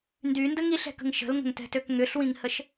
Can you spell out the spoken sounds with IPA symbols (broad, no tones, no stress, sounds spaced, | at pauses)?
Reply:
n d y n d ə ŋ i ɬ ɛ̤ k ə̤ ŋ ʃ ə̤ l ŋ ə̤ ŋ t ɛ̤ t ø k ŋ ʏ ɬ w ĩ ŋ h ə ʃ